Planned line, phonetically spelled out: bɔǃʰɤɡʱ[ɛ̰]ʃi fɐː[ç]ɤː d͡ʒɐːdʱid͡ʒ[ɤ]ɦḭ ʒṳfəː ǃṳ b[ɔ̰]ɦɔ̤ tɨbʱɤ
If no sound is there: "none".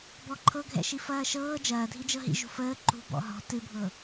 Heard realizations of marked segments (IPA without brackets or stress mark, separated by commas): ɛ̰, ʃ, ɤ, ɔ̰